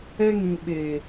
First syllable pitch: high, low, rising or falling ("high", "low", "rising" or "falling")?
high